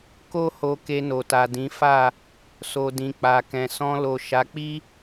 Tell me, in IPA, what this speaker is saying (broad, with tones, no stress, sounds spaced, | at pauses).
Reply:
k o˦ h o˧ k e˧ n o˨ t a˨ d ĩ˨˦ f a˦˨ | s o˨ d ĩ˨ k͡p a˨ k ɛ̃˨ s ɔ̃˧ l o˨ ʃ a˨˦ k͡p i˦